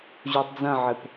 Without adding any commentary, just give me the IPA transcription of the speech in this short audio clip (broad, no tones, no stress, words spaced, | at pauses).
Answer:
ʑutˤd͡zɐ̃ʕɘp